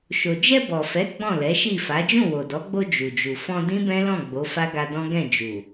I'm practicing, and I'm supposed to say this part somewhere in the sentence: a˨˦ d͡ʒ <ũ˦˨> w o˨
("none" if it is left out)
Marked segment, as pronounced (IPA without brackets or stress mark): ũ˦˨